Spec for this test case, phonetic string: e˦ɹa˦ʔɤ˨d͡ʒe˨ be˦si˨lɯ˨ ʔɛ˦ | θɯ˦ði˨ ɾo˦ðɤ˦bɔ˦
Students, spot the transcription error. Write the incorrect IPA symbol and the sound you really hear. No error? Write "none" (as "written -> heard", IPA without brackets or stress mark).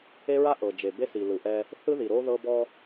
none